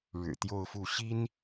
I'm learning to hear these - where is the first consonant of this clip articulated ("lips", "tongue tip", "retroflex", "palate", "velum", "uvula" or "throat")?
retroflex